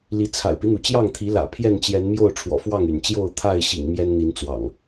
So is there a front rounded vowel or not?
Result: yes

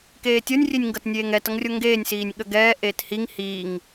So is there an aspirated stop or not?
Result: no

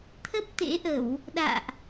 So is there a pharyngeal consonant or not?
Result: no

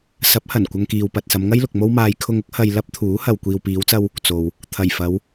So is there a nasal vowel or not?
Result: no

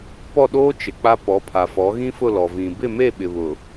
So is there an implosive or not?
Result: yes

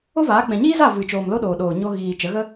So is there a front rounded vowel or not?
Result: no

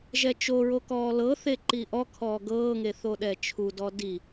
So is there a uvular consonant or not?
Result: no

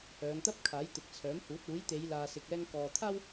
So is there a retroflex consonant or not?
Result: no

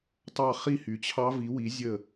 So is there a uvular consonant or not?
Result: yes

